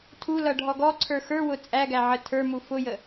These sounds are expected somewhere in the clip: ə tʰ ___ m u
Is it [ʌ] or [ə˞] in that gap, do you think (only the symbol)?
ə˞